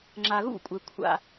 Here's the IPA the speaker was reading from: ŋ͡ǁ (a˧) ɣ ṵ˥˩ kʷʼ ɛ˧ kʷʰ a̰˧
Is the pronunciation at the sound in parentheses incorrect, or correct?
correct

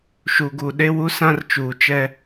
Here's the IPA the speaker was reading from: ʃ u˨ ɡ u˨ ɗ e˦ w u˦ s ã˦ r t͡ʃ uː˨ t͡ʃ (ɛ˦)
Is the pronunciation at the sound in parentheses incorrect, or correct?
correct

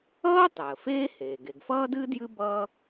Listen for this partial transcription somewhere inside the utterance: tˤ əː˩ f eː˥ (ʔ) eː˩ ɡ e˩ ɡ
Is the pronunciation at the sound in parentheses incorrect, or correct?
incorrect: h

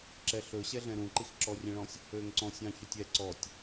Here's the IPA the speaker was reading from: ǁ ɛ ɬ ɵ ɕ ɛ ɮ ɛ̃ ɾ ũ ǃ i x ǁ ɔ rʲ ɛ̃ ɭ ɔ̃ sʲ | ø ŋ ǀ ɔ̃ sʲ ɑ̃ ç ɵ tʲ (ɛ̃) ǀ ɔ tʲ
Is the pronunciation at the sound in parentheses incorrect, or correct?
incorrect: ɛ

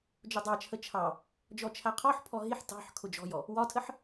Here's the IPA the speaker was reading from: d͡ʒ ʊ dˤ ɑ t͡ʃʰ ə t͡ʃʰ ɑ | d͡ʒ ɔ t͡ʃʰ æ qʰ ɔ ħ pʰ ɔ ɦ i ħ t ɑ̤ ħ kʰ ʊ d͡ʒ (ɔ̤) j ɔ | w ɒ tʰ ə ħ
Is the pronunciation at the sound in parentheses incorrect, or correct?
correct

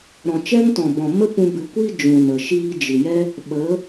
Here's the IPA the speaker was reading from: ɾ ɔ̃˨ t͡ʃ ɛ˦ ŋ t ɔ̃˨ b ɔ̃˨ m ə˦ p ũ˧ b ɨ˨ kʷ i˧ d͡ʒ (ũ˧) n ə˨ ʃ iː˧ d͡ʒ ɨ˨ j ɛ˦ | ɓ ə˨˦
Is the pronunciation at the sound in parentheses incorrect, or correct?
incorrect: ũ˨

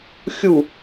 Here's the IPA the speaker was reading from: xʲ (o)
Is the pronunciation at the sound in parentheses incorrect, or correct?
incorrect: u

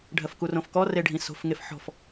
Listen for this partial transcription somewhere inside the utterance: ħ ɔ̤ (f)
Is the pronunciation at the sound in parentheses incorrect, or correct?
correct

